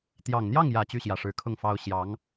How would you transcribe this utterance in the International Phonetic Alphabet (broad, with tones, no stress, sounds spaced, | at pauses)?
t̪ j ɑ˨˩ ŋ n̪ j ɑ˥˩ ŋ j ä˨˩ t͡ɕ y˥˩ ɕ j ä˨˩ ʂ ɻ̩˧˥ kʰ ʊ˥˩ ŋ f ɑ˥ ʊ̯ ɕ j ɑ˧˥ ŋ